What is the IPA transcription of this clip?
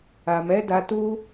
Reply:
a˨mɛ˨˦da˧tu˦

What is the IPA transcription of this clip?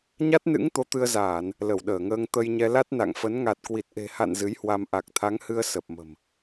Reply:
ɲa˦˥t̚nɨ̰˧˥ŋ t̪o˨˦t̪ɨ˧ə̯zaː˧˩˨n | lə˧˩wɗəː˧˩ŋəː˧ŋ t̪ə˧jɲɛ˧ la˦˥t̚na̰˧˨ŋfə˨˦n ŋa˨˩t̚kwi˨˩t̚ʔe̤˨˩ha̰˧˨n zɨ˨˦jhwa˧m ʔa˨˩k̚t̪ʰa˨˦ŋhɨ˧ə̯ sə˨˩p̚mə̤˨˩m

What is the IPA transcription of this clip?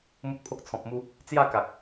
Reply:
mu˦t̚pʰo˦k̚t͡sʰɔ̃˨p̚mu˦ | t͡sja˥˧ ka˨k̚

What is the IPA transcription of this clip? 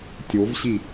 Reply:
tʲovɕi

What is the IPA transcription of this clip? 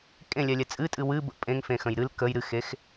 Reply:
kʼẽlʲɛlʲɛ t͡sʼɨtʼɨ wɨ bə̰ pʼẽŋfẽxə̃j ɾɨl kəj ɾɨxex

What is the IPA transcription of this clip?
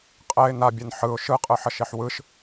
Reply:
qʼɛɪ̯ nabʲɛn ħɯʊ̯ ʃɯqʼɯħʌʃeħ wɯʃ

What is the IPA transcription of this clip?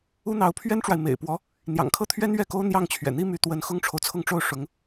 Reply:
u˥ n̪ɑ˧˥ʊ̯pʰɥɛ˥nʈ͡ʂwa˨ɪ̯ mḛ˨˩ɪ̯pwɔ˧˥ | n̪jɑ̰˨˩ŋkʰɤ˥˩t̪ʰɥɛ˥n ɥɛ˥˩ko˥ʊ̯ n̪jɑ˥˩ŋt͡ɕʰɥɛ̰˨˩n̪i˥ my˧˥t̪wə˧˥n xʊ˥ŋʈ͡ʂʰo˨ʊ̯t͡sʰʊ˥˧ŋʈ͡ʂo˥˩ʊ̯ ʂʊ˧˥ŋ

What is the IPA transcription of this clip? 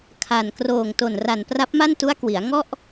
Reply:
kʰa˨˩n kroː˨˩ŋto˨˩nra˨˩n pra˦˥p̚ma˥˩ntu˦˥a̯kwi˩˦a̯ ŋɔ˥˩ʔ

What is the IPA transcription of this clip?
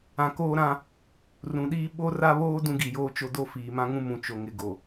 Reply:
ã˨koː˦ɾã˦ | rũ˨ɗiː˦ ɓo˦ra˦βoː˦ dũ˦ɡi˨joː˦t͡ʃo˦ do˦ fiː˨mã˦ŋũ˦mũ˨ t͡ʃo˨ŋɪ˨ɡo˨

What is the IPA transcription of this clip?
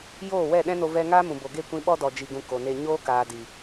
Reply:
joː˦˨wɛ˦˨ɗɛ̃˦no˧ vɛ˦ ŋaː˦mũ˨ bo˨ɡe˦˨kʷĩ˧ ɓɔ˦dɔ˨d͡ʒi˨ɡũ˨ ko˨ne˧ ɲoː˦ kaː˨di˨

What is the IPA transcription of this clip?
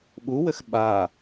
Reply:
ɓuwɘx ɓa

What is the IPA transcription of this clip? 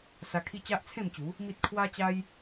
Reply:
sa˧kʰi˦ t͡ɕa˦ʔt͡sʰẽ˥˧mt͡ɕu˨˦ | mi˦t̚ kʰwa˦t͡ɕa˦j

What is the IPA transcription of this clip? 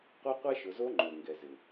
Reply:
qʷa˦qʷɛ˦ ʃʊ˨zo˧ ŋ͡ǃʊː˨ŋɡɛ˨zɪ˨

